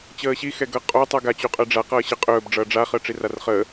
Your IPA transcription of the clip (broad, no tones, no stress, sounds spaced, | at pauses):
t͡ɕ əː ɕ i x ɛ ɡ ʌ qʼ o tˤ u ɡ a t͡ɕ u qʼ ɜ ɖ͡ʐ a q ʌː ɕ ə qʼ ɵː b ɖ͡ʐ ʌː ɖ͡ʐ a χ əː ʈ͡ʂ i r a r χ əː